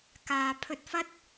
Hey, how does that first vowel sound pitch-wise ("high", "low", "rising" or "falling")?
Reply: low